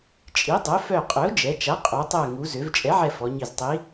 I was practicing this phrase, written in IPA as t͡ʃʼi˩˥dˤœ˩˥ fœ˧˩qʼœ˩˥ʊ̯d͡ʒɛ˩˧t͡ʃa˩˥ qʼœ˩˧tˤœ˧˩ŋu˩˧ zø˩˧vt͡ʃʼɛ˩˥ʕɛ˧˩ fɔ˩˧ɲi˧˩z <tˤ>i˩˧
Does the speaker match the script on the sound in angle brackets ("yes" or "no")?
yes